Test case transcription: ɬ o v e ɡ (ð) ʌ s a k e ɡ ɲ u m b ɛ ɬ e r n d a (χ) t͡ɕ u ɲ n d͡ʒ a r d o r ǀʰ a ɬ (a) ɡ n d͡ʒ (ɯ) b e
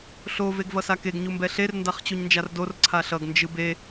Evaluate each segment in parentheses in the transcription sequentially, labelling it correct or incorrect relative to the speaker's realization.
incorrect, correct, incorrect, correct

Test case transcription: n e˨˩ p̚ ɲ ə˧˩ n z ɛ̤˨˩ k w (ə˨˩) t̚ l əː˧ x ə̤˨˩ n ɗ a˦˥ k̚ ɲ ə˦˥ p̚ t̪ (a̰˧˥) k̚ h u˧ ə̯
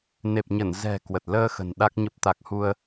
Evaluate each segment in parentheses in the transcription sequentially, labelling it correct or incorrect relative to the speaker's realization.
correct, incorrect

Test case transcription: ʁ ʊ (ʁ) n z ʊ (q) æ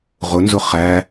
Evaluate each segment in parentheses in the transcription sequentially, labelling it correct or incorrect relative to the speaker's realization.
incorrect, incorrect

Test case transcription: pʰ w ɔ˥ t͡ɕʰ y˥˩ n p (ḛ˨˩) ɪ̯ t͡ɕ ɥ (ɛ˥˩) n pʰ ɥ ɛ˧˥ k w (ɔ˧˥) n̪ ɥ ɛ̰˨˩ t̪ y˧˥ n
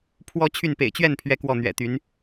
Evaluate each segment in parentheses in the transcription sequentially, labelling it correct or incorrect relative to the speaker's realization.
correct, correct, incorrect

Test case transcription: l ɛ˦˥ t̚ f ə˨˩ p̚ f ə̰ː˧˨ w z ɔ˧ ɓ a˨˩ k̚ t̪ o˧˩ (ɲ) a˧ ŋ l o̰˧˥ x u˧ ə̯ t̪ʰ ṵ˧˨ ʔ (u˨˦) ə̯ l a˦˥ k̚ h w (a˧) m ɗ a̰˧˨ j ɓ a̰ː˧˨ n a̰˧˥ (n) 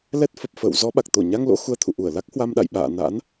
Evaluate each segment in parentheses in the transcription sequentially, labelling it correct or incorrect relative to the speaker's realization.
correct, incorrect, correct, correct

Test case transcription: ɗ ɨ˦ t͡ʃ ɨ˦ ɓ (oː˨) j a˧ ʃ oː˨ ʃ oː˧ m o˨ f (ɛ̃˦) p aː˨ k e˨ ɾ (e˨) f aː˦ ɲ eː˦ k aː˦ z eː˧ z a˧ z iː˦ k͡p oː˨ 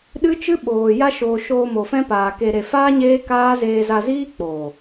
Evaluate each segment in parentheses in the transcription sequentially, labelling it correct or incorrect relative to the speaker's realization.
correct, correct, correct

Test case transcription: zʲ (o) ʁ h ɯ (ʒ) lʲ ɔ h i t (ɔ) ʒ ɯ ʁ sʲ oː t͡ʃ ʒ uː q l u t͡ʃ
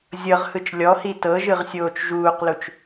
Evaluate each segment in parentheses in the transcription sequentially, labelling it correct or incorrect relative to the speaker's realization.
incorrect, incorrect, incorrect

